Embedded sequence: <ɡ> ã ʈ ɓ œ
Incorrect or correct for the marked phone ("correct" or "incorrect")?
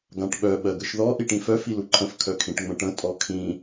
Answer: correct